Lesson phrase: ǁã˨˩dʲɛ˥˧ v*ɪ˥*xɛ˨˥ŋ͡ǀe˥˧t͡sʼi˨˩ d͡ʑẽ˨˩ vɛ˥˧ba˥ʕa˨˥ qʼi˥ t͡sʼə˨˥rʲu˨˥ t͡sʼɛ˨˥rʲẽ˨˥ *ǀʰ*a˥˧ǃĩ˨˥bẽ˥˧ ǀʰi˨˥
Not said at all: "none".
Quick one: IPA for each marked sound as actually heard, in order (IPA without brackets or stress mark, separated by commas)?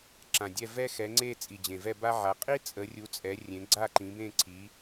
ɛ˥, ɡ͡ǀ